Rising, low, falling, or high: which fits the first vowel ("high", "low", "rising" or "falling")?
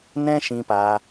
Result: high